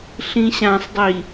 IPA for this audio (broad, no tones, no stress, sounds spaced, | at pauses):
ɬ ĩ ɕ ã sˤ dˤ i